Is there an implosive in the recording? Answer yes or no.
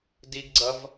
no